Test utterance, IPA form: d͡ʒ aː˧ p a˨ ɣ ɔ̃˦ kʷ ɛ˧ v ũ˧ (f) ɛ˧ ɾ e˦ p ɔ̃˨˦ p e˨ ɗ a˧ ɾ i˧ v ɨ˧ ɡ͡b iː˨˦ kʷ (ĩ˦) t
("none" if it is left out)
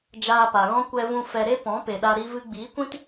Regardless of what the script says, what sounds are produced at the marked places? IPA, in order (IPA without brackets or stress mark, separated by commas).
f, ĩ˦